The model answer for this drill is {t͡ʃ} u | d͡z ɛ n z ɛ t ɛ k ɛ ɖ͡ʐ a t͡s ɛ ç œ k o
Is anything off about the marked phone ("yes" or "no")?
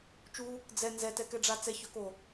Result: no